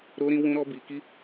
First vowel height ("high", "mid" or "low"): mid